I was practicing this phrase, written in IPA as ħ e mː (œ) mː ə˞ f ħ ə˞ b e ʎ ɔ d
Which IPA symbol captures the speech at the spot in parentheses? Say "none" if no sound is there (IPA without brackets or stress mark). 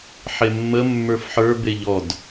ə